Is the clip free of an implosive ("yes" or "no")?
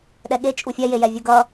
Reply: no